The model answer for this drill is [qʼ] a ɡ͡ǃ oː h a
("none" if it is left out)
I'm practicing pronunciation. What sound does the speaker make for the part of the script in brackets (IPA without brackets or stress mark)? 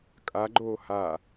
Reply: kʼ